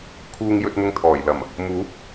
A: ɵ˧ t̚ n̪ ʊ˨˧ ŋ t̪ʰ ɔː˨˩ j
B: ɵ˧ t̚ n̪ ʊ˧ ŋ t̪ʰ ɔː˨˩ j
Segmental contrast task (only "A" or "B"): B